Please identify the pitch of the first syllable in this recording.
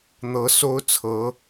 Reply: rising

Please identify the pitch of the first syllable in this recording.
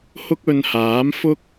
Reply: high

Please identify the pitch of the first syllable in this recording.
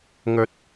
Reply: rising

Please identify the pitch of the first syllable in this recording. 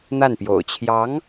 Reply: falling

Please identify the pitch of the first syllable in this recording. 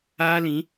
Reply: high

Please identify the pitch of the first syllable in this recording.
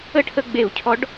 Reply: falling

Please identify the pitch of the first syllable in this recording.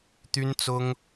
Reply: high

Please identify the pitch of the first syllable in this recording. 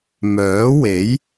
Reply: rising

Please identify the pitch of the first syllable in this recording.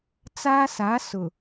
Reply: high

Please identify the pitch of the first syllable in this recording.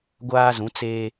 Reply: high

